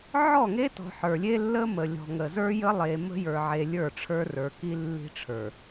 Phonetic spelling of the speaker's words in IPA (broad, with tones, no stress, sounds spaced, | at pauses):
ʕ ɔ˦˨ ŋ e˦ t ɔ̤˨ ħ ə˞˨ lʲ e˦ lː ə˦ m ə˨ lʲ ɔ̤˨ ŋ ə˨ z ə˞˦ j ə˦ lˠ e˨ m ə̤˦ j ə˞˨ ʕ e˨ lʲ ə˞˦˨ ʈ͡ʂʰ ə˞˦ r ə˞˨ k i˦ lː i̤˦ ʈ͡ʂʰ ə˞˨